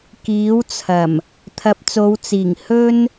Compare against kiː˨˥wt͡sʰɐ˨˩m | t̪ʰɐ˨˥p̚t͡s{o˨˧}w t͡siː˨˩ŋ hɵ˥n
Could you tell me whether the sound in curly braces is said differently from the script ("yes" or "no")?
no